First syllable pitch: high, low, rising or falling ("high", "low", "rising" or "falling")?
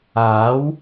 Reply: rising